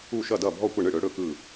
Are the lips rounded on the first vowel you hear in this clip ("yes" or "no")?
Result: yes